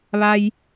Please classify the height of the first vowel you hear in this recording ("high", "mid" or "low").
low